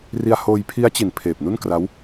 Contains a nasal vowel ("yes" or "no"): no